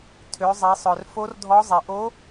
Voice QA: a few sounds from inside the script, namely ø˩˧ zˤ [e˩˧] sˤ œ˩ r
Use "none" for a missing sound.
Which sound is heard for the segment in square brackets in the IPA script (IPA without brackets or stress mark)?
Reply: e˩˧